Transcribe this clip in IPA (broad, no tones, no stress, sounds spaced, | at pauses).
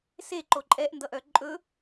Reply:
s e ǃ o ǃʼ ɛ ʔ n d ʌ ʔ œ ǃʼ ɵ